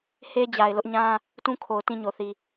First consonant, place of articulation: glottal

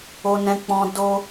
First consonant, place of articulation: alveolar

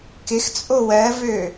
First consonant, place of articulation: velar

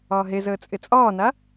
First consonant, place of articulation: glottal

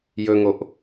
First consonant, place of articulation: palatal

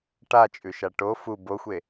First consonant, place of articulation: retroflex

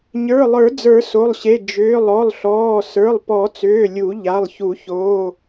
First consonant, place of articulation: palatal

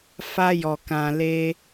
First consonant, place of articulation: labial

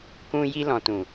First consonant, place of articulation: velar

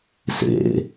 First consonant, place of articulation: alveolar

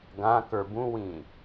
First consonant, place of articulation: velar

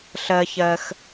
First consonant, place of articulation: alveolar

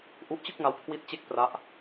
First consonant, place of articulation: glottal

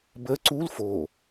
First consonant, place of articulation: labial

